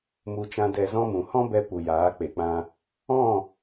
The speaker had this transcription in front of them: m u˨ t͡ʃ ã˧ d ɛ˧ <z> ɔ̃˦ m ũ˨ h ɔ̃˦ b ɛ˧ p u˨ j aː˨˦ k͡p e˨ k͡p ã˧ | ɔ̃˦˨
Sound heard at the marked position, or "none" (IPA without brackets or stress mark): z